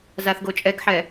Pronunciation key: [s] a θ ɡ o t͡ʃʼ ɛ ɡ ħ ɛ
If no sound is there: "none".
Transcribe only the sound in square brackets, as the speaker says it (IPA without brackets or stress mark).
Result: z